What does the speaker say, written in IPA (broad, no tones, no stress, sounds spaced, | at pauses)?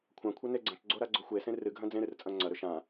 kʷʰ ã kʷʰ ɐ n e ɡ͡ǀ ɐ̃ t͡ʃ ɡ͡ǀ o ɾ a ɡ͡ǀ o xʷ e s ẽ r ɨ ɡʱ ɐ̃ d͡z ẽ ɾ ɨ r t͡sʼ ɐ̃ ŋ͡ǀ ɐ ɾ ɵ ʃ ã